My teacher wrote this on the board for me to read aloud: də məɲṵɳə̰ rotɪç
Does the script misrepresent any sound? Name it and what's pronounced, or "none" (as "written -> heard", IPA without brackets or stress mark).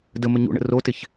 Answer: none